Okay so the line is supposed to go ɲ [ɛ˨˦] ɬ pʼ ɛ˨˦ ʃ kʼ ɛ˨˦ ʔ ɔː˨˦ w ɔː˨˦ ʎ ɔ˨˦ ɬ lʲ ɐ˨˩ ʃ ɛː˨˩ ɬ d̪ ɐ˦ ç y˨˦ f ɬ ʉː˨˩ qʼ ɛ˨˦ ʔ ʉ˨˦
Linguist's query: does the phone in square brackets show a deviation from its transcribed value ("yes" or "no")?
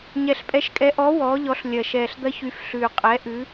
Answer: yes